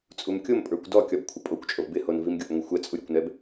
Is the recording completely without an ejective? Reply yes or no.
no